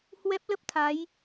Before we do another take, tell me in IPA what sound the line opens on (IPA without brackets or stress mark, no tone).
h